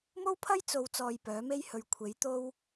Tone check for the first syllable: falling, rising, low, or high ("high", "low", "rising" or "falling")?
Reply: high